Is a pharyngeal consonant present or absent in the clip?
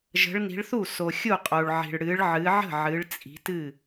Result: present